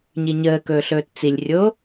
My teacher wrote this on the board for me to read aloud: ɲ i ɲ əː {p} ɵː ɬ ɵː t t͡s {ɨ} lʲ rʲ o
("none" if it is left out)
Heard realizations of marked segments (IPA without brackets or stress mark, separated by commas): k, i